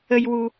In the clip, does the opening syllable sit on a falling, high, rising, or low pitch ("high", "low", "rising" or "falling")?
high